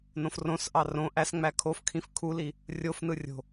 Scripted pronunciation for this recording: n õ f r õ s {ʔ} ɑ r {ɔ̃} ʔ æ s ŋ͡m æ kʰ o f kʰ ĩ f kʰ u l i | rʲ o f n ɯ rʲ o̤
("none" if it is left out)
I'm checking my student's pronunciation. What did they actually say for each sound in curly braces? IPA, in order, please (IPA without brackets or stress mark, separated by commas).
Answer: ʔ, õ